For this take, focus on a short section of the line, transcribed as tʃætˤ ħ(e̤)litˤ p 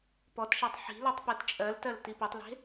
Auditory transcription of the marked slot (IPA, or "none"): i̤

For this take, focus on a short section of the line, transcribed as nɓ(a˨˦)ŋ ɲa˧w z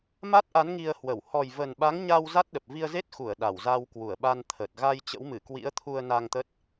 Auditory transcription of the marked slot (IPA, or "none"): a˨˦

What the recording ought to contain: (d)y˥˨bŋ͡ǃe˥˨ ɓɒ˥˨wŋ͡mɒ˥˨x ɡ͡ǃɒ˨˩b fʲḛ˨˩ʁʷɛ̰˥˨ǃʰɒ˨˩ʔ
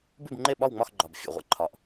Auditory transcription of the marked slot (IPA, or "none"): b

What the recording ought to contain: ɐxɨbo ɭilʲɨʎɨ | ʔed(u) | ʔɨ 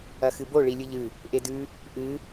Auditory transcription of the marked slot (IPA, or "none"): ʉ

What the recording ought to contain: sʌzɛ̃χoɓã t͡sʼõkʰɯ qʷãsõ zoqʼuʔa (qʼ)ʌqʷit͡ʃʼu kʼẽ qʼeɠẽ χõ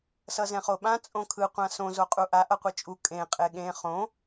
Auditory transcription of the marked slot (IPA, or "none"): ʔ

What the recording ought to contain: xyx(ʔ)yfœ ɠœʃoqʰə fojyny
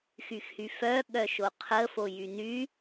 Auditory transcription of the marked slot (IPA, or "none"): h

